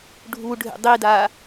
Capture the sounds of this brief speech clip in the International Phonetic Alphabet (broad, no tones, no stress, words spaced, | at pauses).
ɖʱuɖʱḛ dˤida